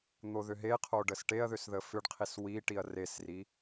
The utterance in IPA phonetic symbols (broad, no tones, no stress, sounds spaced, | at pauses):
n̪ o ð ʏ ɦ e qʰ o ɖ ə s ʈ e ɐ̯ ð ʏ s ð ə f ʏ ɖ qʰ i s w i ʈ i ɐ̯ r e s r i